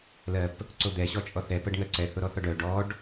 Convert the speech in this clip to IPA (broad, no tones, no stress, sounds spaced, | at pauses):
l ɜ p | ǀ o d̪ ɛ ɕ ɔ t͡ʃʼ ɔ θ ɛ p ɜ ɖ ŋ ɜ ǀ ɛ θ o ɾ ɔ θ ɔ ɖ œ ɖ ɔ ɖ